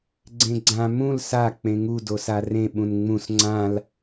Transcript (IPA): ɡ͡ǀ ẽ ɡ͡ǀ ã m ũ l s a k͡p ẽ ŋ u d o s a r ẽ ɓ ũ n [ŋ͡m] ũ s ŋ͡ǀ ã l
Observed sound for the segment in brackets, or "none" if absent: ŋ͡m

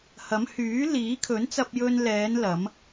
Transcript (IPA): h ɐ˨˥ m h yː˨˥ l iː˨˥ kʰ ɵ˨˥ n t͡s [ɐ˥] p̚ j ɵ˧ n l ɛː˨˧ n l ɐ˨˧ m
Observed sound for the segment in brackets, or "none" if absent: ɐ˧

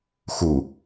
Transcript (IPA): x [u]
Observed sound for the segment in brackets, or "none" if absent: u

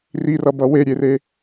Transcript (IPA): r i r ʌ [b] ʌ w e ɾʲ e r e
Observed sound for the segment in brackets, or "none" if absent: b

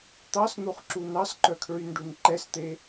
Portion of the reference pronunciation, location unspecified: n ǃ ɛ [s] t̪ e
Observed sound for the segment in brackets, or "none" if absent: s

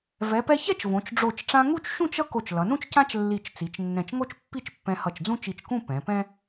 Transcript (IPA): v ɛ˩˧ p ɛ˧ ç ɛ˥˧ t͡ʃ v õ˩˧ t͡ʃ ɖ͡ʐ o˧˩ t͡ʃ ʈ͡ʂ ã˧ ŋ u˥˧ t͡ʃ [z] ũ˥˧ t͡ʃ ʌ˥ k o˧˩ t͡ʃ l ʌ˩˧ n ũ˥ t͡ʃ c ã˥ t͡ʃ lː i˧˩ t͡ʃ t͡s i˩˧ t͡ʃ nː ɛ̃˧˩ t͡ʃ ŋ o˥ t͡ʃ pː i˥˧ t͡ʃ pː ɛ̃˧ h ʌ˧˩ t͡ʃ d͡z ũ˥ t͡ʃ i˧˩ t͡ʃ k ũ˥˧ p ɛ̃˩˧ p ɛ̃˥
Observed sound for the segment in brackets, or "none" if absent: ʃ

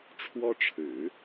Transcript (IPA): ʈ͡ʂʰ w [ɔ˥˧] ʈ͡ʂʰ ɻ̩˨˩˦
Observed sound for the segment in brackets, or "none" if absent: ɔ˥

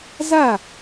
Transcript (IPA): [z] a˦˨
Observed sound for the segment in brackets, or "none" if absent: z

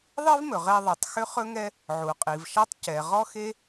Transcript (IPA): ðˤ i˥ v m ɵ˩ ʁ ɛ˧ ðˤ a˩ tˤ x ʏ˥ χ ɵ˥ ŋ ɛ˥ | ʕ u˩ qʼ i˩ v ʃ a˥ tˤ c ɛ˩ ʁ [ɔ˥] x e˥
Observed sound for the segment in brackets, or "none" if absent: ɔ˥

